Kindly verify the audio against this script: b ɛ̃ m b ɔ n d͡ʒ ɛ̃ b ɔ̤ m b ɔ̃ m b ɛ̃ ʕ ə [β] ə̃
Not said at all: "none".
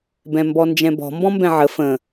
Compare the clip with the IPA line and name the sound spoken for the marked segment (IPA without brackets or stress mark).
f